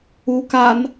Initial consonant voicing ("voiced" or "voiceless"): voiceless